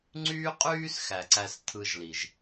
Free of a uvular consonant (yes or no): no